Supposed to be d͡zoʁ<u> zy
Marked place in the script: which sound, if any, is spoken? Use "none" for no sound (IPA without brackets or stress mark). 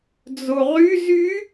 y